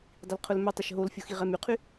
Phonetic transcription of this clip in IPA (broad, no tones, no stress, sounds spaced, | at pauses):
dˤ i l qʰ ʊ l m œ tˤ e ʃ ɦ o l fʲ o x i ʁ ɛ m y qʰ y